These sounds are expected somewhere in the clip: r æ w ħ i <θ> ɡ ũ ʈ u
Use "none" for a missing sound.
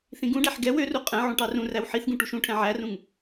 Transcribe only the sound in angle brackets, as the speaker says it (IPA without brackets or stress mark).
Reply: θ